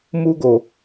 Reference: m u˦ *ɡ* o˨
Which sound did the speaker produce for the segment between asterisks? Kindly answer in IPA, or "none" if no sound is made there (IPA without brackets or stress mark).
ɡ